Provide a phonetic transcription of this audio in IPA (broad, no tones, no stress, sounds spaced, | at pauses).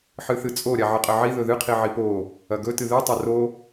ħ ɨ θ ɨ t͡sʼ o ɾʲ a ʕ ɨ qʼ ɐ ʕ i ð ɵ ð ɨ qʰ i ʕ i p o | ɐ ɡ ɵ t ɨ ð ɨ tˤ ɐ r o